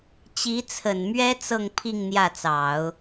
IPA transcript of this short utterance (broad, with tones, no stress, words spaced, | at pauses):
t͡ɕi˧˥t͡sʰə˨˩nmɥɛ˥ t͡sɤ˥˧ŋpʰi˥˧ŋ n̪jä˥˩t͡sɑ˨˩˦ʊ̯